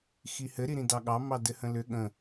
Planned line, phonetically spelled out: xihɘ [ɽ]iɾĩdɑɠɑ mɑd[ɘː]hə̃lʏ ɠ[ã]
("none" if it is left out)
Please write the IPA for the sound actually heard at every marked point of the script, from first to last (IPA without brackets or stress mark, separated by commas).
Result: ɾ, ɘ, ə̃